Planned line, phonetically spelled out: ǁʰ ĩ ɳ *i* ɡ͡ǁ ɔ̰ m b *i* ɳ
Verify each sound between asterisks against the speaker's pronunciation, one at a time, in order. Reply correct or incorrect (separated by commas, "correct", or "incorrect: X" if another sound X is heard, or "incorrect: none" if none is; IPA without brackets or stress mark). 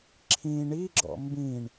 correct, incorrect: ĩ